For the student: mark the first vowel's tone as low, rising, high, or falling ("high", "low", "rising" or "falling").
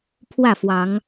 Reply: falling